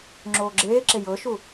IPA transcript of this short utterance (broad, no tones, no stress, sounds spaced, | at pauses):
ŋ͡ǁ oː ɡ͡ǁ eː ǁ e j ɤ ʃ u